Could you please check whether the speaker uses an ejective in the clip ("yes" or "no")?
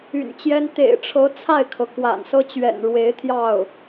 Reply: no